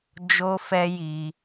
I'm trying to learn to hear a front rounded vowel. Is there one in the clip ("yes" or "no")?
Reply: no